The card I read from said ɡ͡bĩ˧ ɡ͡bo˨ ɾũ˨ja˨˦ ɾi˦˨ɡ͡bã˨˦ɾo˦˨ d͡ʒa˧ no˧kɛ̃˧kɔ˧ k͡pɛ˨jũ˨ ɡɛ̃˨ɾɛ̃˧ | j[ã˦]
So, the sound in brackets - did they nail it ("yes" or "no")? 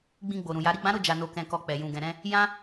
yes